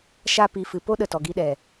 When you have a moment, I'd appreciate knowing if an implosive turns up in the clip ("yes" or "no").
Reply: yes